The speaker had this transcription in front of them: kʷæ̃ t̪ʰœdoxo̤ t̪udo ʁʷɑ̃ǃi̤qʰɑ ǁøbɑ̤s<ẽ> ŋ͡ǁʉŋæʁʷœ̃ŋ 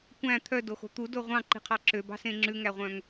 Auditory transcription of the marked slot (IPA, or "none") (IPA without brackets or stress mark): ẽ